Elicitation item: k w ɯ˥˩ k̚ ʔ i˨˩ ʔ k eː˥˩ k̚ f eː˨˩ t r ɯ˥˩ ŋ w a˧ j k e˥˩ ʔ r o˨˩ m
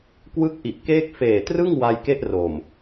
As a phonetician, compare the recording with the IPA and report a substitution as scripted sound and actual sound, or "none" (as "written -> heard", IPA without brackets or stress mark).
none